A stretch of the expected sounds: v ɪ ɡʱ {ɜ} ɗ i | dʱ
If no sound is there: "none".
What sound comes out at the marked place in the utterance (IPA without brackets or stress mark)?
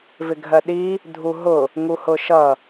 ɜ